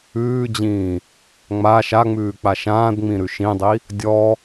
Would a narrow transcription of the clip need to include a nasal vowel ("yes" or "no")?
yes